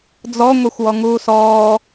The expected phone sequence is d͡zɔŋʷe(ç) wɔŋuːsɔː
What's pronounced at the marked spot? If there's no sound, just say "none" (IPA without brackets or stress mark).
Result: xʷ